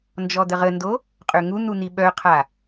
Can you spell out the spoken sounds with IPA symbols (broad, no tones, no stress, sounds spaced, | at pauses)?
n d͡ʒ ɔ d̪ ə ʁ ə n d o | qʼ ø ŋ u n̪ u n̪ i ɓ œ qʰ a